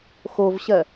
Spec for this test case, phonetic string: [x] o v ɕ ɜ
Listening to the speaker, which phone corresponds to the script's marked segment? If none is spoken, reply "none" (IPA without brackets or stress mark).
x